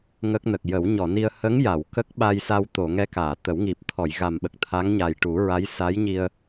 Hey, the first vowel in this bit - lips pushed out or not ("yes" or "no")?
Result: no